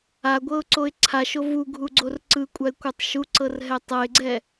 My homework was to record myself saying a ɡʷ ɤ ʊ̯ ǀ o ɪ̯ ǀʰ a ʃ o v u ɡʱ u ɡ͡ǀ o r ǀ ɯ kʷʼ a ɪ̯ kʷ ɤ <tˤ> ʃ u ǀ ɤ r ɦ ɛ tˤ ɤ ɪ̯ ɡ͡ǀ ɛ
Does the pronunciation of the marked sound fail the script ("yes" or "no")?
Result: no